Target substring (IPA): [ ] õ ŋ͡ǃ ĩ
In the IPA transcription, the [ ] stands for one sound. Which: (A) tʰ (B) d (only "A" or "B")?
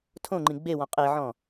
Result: A